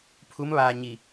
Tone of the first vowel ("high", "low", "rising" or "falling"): rising